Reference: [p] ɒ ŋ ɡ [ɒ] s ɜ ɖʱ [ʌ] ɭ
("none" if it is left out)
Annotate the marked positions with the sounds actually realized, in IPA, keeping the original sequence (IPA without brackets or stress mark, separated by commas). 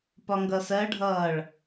p, ʌ, ʌː